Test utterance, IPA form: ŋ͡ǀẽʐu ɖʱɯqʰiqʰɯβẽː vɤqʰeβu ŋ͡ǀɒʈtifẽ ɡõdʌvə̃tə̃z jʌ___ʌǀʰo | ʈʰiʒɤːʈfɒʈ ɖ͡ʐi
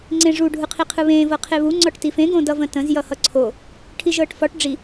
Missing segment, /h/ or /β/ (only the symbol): h